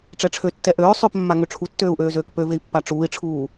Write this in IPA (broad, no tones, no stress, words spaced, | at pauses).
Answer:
ʈ͡ʂɛʈ͡ʂʰøtːɛ ʔøː sˤøpmːa ŋøʈ͡ʂʰutːøːu̯ ʔøːzøːkpøvei̯ pːaʈ͡ʂuːi̯ʈ͡ʂʰuː